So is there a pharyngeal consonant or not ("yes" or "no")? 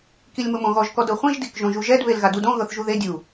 no